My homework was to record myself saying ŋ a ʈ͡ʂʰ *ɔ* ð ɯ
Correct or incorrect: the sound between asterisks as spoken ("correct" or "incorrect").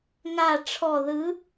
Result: correct